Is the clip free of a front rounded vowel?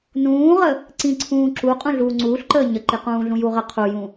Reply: yes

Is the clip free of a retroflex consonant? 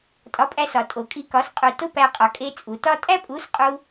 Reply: yes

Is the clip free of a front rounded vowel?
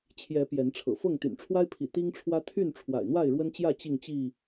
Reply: no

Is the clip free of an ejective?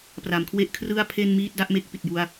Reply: yes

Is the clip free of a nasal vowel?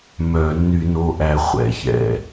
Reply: yes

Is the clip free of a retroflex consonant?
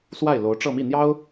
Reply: no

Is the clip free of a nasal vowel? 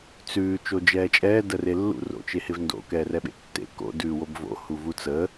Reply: yes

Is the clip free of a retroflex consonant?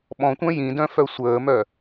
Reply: yes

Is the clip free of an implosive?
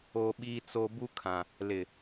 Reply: no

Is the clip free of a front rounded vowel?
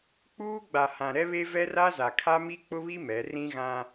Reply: yes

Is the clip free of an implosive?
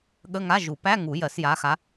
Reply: no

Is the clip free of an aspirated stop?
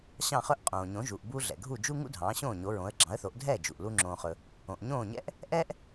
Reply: yes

